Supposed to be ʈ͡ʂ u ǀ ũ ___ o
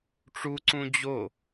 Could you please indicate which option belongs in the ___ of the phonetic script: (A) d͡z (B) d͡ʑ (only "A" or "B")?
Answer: B